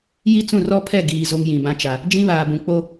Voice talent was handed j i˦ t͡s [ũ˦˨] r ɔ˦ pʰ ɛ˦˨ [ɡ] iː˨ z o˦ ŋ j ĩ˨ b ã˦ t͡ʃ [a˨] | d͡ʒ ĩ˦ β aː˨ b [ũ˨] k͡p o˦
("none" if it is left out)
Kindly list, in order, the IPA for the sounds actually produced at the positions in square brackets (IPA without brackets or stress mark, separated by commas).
ũ˦˨, ɡ, a˨, ũ˨